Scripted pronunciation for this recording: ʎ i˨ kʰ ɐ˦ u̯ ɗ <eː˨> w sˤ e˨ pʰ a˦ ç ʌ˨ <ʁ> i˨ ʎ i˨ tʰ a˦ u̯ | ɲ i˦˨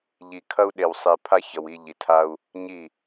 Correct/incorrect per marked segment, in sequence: incorrect, incorrect

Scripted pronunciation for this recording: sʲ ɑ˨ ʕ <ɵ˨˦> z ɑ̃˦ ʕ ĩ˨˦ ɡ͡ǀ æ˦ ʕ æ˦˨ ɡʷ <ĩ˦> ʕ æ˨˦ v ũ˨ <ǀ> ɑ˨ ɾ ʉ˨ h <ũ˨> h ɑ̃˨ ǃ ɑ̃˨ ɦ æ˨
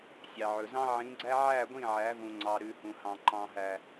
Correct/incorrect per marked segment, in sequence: incorrect, incorrect, incorrect, correct

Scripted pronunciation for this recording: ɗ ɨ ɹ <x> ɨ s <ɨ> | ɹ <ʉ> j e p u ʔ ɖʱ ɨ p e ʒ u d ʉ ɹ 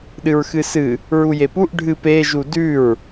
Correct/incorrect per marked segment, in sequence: correct, correct, incorrect

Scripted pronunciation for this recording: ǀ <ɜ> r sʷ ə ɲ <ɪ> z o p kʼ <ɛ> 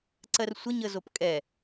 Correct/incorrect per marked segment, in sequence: correct, incorrect, correct

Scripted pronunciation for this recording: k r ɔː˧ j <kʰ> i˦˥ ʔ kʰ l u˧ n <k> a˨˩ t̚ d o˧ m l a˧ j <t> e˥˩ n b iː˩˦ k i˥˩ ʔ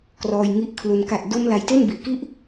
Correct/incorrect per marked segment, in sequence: incorrect, correct, correct

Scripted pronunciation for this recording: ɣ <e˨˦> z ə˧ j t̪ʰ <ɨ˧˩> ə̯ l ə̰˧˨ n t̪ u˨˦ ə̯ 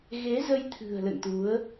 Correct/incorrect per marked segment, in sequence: correct, incorrect

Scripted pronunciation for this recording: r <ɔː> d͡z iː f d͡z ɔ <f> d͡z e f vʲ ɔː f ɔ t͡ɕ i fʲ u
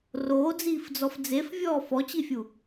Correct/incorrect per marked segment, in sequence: incorrect, correct

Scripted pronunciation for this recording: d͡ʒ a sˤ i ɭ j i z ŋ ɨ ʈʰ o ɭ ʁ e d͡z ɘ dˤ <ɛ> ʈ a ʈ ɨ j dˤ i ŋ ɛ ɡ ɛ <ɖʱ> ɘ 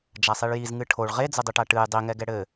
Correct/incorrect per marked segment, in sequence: incorrect, incorrect

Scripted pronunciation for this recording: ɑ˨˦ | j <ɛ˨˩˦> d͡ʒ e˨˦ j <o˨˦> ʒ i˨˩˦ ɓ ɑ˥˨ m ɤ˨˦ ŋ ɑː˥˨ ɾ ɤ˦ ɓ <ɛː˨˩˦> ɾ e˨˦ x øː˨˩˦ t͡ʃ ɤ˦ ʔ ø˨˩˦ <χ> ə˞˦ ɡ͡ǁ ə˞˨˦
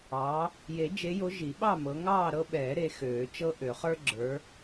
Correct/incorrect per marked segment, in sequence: incorrect, correct, correct, correct

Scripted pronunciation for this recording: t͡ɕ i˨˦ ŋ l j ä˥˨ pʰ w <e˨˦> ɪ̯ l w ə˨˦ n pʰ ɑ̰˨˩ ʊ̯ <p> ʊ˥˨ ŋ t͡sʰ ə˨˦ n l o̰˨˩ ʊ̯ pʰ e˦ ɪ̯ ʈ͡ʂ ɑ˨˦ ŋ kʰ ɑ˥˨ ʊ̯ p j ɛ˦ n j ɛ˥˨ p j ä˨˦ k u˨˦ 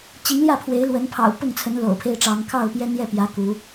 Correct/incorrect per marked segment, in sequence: correct, correct

